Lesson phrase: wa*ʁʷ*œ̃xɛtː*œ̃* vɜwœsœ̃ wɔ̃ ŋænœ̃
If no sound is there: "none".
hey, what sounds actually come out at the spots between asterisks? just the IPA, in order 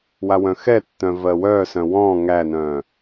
w, œ̃

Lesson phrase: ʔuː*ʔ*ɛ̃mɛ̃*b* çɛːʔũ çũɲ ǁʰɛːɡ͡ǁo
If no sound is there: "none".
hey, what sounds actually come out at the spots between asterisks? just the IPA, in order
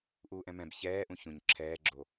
ʔ, b

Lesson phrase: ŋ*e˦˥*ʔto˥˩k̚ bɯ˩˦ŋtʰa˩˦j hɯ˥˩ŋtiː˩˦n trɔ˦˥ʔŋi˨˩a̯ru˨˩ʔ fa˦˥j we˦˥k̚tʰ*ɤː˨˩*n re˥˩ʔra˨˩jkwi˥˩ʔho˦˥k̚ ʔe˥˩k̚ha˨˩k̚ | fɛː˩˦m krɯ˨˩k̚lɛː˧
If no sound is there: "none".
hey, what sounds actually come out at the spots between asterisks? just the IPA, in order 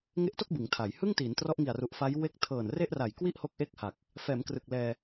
e˦˥, ɤː˨˩

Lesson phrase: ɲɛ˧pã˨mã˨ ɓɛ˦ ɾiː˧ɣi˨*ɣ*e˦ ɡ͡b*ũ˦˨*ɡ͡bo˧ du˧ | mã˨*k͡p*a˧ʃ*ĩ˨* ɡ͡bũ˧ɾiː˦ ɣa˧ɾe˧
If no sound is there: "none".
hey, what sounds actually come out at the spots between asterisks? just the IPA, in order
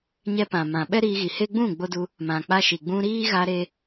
h, ũ˦˨, k͡p, i˨

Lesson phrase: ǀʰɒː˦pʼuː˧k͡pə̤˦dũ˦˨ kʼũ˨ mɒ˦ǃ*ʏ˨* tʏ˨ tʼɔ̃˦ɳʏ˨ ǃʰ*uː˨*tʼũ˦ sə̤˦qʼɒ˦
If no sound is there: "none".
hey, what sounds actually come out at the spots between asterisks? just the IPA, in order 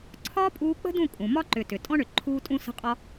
ʏ˨, uː˦

